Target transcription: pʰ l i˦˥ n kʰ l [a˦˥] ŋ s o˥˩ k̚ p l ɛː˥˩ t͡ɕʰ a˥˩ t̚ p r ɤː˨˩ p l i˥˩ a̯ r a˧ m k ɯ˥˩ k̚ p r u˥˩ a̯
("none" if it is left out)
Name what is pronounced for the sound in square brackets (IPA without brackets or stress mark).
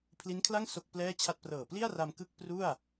a˥˩